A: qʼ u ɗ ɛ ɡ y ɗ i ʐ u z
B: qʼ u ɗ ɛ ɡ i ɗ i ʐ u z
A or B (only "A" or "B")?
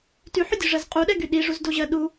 A